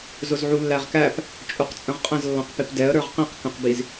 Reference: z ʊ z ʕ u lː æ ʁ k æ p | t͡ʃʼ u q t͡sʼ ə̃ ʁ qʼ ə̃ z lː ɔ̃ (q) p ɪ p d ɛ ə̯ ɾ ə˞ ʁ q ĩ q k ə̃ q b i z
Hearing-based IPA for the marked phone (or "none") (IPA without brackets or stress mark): q